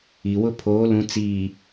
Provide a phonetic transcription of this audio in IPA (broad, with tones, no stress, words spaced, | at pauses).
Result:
i˨wʊ˦pʰoː˨˦ lũ˨t͡siː˨